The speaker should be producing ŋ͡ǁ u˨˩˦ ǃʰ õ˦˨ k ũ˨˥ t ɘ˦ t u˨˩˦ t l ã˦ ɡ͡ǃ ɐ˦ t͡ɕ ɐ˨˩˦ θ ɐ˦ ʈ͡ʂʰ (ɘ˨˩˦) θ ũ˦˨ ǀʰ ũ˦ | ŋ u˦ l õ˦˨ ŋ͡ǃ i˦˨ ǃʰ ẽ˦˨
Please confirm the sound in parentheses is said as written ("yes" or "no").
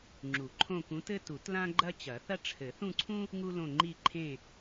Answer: yes